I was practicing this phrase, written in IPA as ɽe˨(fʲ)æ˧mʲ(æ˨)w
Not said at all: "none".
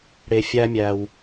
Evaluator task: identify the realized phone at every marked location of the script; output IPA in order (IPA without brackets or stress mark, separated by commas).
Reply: fʲ, æ˨